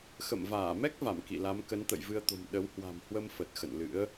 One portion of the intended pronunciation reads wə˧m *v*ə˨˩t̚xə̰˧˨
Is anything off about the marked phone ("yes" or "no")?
yes